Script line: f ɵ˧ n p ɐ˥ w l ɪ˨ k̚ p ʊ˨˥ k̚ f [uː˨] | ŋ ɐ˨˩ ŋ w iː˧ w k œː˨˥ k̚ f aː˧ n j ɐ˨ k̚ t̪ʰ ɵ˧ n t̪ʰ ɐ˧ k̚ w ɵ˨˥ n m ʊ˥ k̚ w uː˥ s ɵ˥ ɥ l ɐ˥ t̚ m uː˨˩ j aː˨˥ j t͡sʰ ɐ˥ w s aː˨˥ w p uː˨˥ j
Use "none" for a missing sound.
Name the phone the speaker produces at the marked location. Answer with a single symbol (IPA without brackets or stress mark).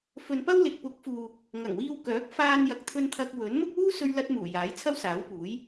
uː˨